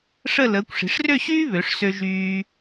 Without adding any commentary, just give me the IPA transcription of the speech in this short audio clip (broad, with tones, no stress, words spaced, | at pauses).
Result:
ʂə˥˧ ləː˩˧kʷʂi̤˩˧ʂrø˥˧ɕyː˥ βø˩˧ʂsø˧ ʒyː˧